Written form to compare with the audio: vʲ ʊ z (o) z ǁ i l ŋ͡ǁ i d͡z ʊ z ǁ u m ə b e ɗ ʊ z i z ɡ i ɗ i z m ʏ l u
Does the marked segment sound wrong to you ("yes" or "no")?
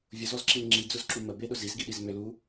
yes